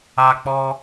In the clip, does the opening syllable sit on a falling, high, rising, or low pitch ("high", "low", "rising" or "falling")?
high